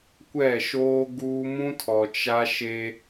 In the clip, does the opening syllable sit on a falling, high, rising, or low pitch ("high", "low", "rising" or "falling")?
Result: falling